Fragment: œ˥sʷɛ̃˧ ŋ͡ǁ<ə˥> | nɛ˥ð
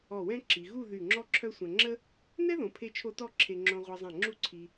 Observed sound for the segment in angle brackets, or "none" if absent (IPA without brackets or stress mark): ə˥